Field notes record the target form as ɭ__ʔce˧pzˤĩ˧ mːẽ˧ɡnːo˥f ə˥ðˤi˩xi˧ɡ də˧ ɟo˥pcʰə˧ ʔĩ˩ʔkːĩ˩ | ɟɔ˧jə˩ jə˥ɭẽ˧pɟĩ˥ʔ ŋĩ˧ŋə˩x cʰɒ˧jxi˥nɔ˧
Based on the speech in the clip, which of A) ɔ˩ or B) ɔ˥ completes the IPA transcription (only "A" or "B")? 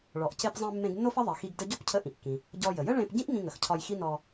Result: A